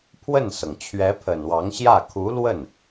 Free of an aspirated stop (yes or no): no